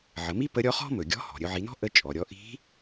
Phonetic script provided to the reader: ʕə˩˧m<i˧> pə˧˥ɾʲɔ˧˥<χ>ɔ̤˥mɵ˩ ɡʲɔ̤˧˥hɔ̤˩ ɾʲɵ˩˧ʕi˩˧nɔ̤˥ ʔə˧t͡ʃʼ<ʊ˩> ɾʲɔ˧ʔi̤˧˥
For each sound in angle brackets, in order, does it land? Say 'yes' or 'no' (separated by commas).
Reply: no, yes, no